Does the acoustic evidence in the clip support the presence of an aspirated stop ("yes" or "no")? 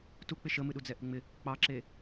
no